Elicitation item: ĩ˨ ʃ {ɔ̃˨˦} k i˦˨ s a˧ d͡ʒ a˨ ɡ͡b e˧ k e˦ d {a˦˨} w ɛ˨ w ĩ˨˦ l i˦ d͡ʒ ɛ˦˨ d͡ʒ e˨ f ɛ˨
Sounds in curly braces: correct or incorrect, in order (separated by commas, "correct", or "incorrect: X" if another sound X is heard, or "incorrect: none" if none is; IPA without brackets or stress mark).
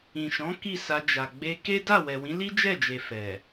correct, correct